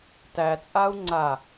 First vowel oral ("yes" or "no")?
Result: yes